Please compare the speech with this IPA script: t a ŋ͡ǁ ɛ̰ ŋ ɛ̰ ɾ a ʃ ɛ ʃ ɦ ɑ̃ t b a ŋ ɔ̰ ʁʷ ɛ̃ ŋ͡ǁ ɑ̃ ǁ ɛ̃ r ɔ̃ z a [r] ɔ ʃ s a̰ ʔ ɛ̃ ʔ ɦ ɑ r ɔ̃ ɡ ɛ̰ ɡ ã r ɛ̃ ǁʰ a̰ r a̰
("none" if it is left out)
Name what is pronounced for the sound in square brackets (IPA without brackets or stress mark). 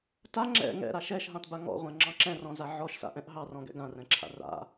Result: ʕ